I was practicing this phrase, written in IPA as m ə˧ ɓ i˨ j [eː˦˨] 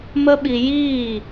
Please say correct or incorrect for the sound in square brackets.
incorrect